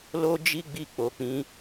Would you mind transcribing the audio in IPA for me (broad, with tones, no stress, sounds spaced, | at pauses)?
l o˦ d͡ʒ i˦ ɡ͡b i˧ k͡p o˨ k͡p ĩ˨˦